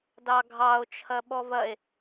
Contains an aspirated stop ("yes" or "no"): yes